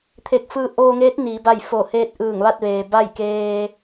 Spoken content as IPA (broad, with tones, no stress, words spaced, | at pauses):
t̪ʰe˧˩k̚fɯː˧ ʔoː˧ŋeː˧˥t̚ niː˩˧ba˥˨j fo˧˩ heː˧t̚ ʔɯː˧˩ŋʋa˥˨t̚ʋeː˩ ba˥˨jkeː˧